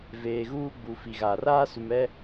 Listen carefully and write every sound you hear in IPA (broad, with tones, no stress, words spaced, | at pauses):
veː˨ɣuː˦ ɡ͡bu˨ fi˨ɣaː˨r aː˦su˨mɛ˦